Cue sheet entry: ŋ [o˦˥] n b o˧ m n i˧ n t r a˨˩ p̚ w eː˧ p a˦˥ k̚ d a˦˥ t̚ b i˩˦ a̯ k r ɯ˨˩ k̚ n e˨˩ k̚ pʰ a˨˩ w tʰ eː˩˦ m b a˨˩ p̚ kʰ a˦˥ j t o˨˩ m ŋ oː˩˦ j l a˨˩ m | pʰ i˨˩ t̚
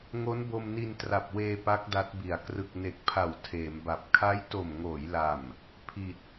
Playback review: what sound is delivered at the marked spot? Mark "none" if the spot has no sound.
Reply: o˦˥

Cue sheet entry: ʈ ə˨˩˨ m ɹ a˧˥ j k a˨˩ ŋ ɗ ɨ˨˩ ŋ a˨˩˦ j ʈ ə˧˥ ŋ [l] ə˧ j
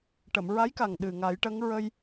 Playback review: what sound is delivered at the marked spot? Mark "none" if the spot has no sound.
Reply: ɹ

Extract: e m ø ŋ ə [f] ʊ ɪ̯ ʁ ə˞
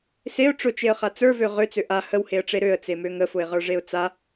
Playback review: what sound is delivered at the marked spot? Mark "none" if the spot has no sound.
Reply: f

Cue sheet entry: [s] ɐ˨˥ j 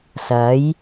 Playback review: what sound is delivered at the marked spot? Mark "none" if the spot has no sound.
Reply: s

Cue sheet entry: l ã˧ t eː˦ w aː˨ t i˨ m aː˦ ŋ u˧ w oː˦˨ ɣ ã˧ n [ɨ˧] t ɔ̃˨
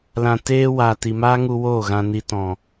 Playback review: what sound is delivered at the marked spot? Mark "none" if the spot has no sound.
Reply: i˧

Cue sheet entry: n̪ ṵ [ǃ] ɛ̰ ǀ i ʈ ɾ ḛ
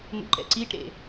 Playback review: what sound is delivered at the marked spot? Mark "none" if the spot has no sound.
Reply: ǃ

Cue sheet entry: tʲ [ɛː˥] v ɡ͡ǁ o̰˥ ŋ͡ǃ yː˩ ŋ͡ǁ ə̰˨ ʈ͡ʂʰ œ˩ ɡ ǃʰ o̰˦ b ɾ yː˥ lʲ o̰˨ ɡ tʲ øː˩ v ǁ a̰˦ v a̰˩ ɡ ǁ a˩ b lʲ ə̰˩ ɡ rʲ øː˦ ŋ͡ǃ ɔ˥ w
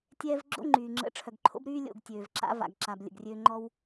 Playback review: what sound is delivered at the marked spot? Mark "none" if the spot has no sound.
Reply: ɛː˦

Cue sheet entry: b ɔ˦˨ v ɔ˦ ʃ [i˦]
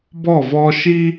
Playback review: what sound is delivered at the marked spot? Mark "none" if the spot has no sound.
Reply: i˦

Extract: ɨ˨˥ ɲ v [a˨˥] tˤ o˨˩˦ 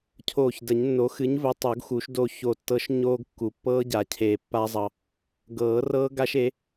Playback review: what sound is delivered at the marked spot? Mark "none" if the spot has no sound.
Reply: ə˨˥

